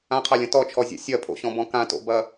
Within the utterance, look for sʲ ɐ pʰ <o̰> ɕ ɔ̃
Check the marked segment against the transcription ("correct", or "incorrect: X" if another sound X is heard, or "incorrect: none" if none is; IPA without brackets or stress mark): correct